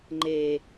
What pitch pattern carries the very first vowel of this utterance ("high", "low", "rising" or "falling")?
low